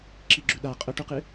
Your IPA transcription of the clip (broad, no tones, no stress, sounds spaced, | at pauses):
ǁ i ɡ͡ǁ ʉ ɗ a qʼ ɵ ʈ u q ɨ